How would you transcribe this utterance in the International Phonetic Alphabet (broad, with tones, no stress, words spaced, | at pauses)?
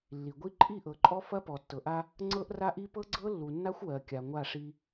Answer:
lːi˨ɡʷi˦ ǃʼi˦˨ʔɤ˨ǃʼɔ˦ fɐ˦pɔ˨tːɤ˨ʔa˦ | ŋ͡ǀɤ˦ʔra˦ʔi˦ pɤ˦ɡ͡ǀɤ˦ lːu˨nːa˦xʷ wɜ˨kʲa˨ŋʷa˦˨ʂi˦